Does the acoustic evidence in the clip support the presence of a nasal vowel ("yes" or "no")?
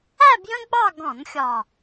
yes